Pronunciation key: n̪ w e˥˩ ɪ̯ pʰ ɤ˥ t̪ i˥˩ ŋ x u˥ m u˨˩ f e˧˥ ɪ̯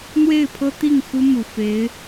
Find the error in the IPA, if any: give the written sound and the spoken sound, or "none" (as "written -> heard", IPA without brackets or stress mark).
none